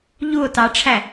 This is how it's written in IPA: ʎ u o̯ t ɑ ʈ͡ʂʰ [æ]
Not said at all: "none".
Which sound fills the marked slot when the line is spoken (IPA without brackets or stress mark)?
æ